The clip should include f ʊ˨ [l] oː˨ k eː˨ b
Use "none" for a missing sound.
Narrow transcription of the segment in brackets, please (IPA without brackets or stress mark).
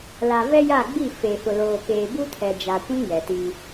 l